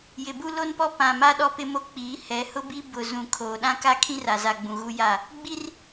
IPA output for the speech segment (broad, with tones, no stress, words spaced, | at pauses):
jɪ˨bu˦lo˦npɔ˦ pã˨ma˦ ɗɔ˦pɪ˦mo˦k͡piː˨˦ hɛ˨˦hʊ˦bi˦ bʊ˨zũ˨ kʰoː˨ɗã˦ka˦ kʰĩ˦ra˨za˨ɡ͡bũ˨ ɣu˦ja˦˨ | ɡ͡bi˦r